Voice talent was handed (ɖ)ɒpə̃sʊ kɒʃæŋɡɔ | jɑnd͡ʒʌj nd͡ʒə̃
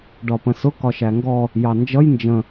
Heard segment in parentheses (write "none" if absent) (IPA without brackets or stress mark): ɖ